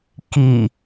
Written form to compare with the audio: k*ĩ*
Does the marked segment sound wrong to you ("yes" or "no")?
yes